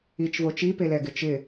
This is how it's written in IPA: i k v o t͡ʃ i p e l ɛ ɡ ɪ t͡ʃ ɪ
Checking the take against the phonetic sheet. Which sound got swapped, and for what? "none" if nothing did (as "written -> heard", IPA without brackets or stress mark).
k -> t͡ʃ